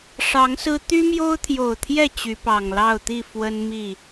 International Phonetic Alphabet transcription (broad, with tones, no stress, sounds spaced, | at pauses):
ʂ ɑ˨˦ ŋ s ɹ̩˦ t̪ y˦ m j o˦ ʊ̯ t̪ʰ j o˨˩ ʊ̯ t̪ʰ j ɛ˥˨ t͡ɕ y˨˦ p ɑ˨˩ ŋ l ɑ˥˨ ʊ̯ t̪ i˥˨ f w ə˦ n m i˥˨